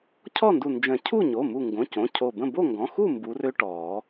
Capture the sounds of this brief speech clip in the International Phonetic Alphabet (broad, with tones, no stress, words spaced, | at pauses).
cʰɔ˥˨ndu˧˩nd͡ʒə̃˨˩˦ cʰu˥˨ɲo˩˧˩mu˧˩ŋɡõ˩˧˩ cõ˩˧˩cʰo˧˩bə̃˥˨ bo˥˨ŋɡɔ̃˩˧˩xu˥˨ mbu˨˦rø˦ ʈɔ˨˩˦